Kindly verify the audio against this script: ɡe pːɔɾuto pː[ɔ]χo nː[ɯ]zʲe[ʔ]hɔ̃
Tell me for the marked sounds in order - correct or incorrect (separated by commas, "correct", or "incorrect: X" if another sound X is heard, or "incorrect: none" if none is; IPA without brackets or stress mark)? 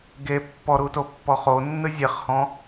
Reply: correct, correct, incorrect: χ